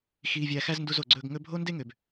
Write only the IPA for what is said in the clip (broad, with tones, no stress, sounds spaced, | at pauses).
x iː˧ vʲ æ˧ x æ˦ z n d u˧ z o˨ ɡ͡ǀ ɵː˧ ɡ ŋ ɵ˦ bʱ o˦ n d e˦ ŋ ø˨ b